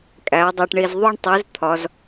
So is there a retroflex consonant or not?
yes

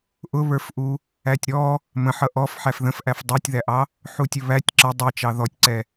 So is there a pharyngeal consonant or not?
yes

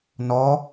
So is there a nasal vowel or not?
no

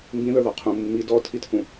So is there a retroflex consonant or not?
no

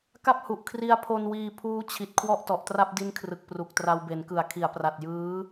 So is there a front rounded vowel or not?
no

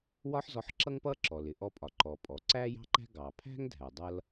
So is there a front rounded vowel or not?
no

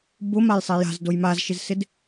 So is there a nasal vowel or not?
no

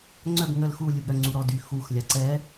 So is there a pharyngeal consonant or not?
no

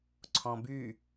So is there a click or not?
yes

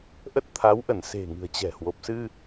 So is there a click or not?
no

